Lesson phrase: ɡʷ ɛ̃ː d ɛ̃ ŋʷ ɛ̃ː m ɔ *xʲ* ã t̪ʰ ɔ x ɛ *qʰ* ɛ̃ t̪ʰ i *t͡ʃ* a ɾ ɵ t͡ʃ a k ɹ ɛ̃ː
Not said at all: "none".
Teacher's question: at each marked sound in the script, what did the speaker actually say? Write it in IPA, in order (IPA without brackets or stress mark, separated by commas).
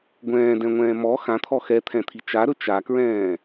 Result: x, t̪ʰ, t͡ʃ